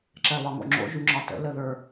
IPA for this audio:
ǁ ɜ β ɒ ŋ o̰ ŋ͡ǁ o̰ ʒ y ŋ͡ǁ ɒ t ə̰ l ə ð ə˞

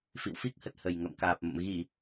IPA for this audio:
f ḭ˧˨ w f i˦˥ k̚ h ə˨˩ t̚ h ə˨˩ j ŋ ə̰˧˨ m k aː˨˩ p̚ m ə̰˧˨ m ɣ i˧˩˨

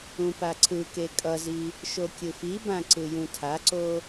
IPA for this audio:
ũ p a ǀʰ ɯ k e kʼ ʌ z i | ʃ o kʲ ɯ f i b ã ǀ ɯ j ũ tʰ a ǀ o

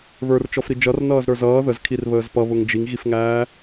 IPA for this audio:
β ə˞ r t͡ʃ ɔ f ɾ i d͡ʒ ʌ r n ʌː z ɾ ə˞ z ʌː ð ə z kʰ i r β əː z p ʌ β ʊ ŋ d͡ʒ i ŋ ɣ i f ŋ æː

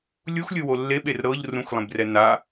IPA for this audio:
lʲ u x lʲ ɯ w o lː e ɓ e r ɾ ɤ ʎ r ũ x lˠ ẽ b r ɛ n a

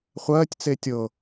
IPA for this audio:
χʷ ɜː tʲ t͡s e tʲ ɤ

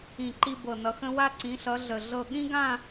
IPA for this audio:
ĩ˧˩ ǃ i˧ b ɤ˧˩ n ʌ˧ x ə̃˥ w a˧ ǀ ĩ˩˧ ɬ ʌ˩˧ ɮ ə˧˩ ɮ ɤ˥˧ ɠ ĩ˥ ɡ ã˥˧

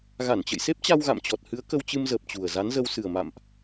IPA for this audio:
ɣ a˧˩ n t͡ɕ ə̰˧˨ j s e˦˥ p̚ t͡ɕ a˧ w ɣ a̰˧˨ m t͡ɕ ɔ˨˩ t̚ h ɨ˨˦ ə̯ k ə˧ w t͡ɕ ɨ˧ m z əː˨˩ p̚ t͡ɕ u˨˩ ə̯ z a˨˦ n z ə˧ w s ɨ˨˩ ə̯ m a̰˧˨ m ʔ

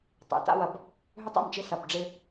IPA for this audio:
tˤ ḛ˨ t a̰˦ w ɐ˨ b | ɦ ʏ˦ tˤ ḛ˦˨ m t͡ʃ ɪ˦ s ɐ˨ b ɖ͡ʐ ɪ˦

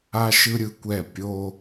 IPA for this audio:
a˦ ʃ ɯ˦ ɾʲ ɯ˦ kʷ ɛ˦˨ pʲ o˦

